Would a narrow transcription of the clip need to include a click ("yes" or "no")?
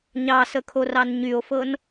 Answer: no